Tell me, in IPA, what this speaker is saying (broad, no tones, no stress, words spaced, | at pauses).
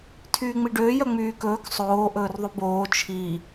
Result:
tʰyːŋ͡miɖøːjœ ŋ͡myːkɵːk sˤoːʔɵːrðˤub oː t͡ʃʰi